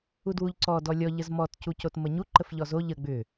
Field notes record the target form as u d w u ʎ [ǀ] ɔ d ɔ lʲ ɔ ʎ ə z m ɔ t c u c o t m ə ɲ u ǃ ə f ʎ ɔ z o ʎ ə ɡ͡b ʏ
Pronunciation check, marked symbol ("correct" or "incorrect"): correct